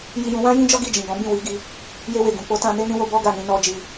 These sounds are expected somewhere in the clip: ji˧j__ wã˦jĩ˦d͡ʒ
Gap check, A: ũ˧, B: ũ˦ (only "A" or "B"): A